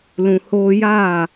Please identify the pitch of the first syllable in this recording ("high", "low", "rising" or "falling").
low